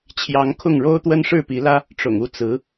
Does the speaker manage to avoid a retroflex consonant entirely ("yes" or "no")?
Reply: no